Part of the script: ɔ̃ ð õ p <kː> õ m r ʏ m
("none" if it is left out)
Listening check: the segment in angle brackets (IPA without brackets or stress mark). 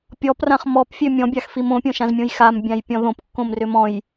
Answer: kː